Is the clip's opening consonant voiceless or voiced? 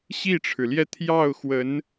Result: voiceless